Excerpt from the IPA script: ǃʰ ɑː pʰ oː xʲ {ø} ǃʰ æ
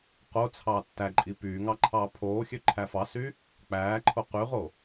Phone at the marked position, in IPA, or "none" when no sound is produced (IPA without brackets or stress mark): ø